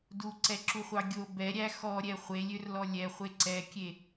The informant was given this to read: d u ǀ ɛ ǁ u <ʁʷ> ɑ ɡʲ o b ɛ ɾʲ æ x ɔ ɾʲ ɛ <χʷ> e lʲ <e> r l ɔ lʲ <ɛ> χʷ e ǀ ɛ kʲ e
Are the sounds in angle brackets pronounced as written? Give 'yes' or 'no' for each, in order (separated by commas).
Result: no, yes, no, yes